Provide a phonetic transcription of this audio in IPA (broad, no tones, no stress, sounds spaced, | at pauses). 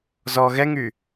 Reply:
z ɔ ɣ ɛ ŋ y